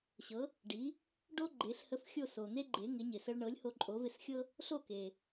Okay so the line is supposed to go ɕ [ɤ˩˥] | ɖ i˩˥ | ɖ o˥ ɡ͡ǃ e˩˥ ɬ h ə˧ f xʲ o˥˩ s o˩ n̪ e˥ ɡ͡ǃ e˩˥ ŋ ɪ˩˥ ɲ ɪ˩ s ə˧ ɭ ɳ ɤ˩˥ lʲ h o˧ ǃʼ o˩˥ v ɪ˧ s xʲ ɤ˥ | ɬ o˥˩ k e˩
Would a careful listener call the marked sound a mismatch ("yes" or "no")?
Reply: no